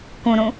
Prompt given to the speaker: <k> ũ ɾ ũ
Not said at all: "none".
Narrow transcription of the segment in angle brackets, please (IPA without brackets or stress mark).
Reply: k